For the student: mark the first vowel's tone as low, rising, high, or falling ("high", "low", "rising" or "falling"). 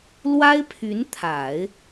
high